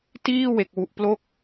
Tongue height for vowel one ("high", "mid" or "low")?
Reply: high